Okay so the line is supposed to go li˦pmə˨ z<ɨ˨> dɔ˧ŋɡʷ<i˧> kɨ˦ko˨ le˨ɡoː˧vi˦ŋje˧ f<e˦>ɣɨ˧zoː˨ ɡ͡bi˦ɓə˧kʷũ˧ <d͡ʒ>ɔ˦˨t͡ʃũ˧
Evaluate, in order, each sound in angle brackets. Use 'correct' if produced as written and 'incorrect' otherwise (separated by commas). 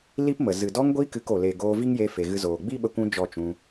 correct, correct, incorrect, correct